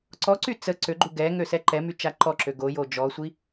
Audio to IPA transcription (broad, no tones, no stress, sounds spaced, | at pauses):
ǀ ɔ ǀ y t͡s ə ǀ ø ɡ͡ǃ u ɡ ɛ ŋ ø s ɛ ǃ ɛ m y t͡ʃ a ǃ ɔ ǁ ø ɡ o j o d͡ʒ ɔ sʷ i